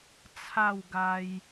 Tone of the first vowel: falling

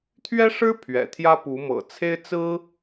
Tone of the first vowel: high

